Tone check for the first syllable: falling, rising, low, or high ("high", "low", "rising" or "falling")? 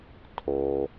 low